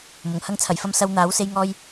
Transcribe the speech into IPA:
m ʊ˨˩ ŋ h ɐ˧ ŋ t͡sʰ ɐ˨˩ j f ɐ˧ m s ɐ˧ w n̪ aː˨˥ w s e˧ j ŋ ɔː˧ j

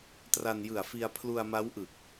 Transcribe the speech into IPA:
t r a˧ n j ɯ˨˩ a̯ f i˧ a̯ pʰ l u˧ a̯ m a˦˥ w ʔ ɯ˨˩ k̚

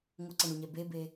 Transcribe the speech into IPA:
ŋʷ ʌ ǀ ʌ ɳ u ɲ ɛ b e b e

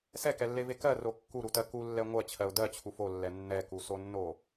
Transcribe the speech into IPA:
s ɛ k ɛ lː e v e k ɜ r o kː u ɾ u t ɜ k u lː ɛ ŋʷ ɜ t͡ɕʰ ɜ ʊ̯ d ɜ t͡ɕʰ u f o lː ɛ nː ɛ k u s o nː o

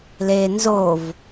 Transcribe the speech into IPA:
l e n z o v

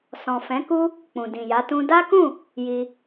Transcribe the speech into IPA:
s ɔ̃˨ f ɛ̃˨˦ k u˦ | k͡p ũ˨ d ĩ˨ j a˨˦ t ũ˦ d a˦ k ũ˦˨ | j i˧

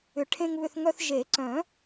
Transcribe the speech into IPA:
ʏ˨˩˦ ʈʰ ẽ˧ ŋ β ʏ˧ θ ŋ œ˧ θ ʒ e˨˩˦ ǀ œ̃˨˩˦

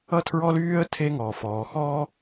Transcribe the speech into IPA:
ʌ˥ tʰ ɹ ɔ˥ l yː˥ ə̯ tʰ e˥ ŋ ɔː˩ f ɔː˩ x ɔː˥

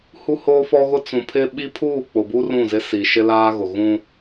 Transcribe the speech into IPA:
h u˦ h oː˦ f ɔ˦ ɣ ʊ˦ t͡s ũ˨ pʰ ɪ˦ ɓ i˦ pʰ uː˦˨ k͡p ʊ˨ b u˦ r ũ˦˨ z ɪ˦ s i˨ ʃ ɪ˦ l aː˦ ɣ ʊ˨ ɣ ũ˦

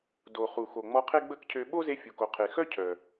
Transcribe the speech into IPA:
d o˩ χ u˩ x o˩ ŋ͡m ɔ˧ qʰ e˥ ɡ͡b ə˥ k cʰ ø˧ ɓ o˥ z e˧ fʲ u˩ k o˩ qʰ e˩ x œ˥ cʰ œ˩

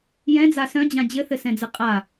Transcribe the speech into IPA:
j ɛ̃ d͡z a s œ̃ d͡ʑ ã d͡ʑ ɘ θ ɘ s ɛ̃ d͡z ɨ qʼ a

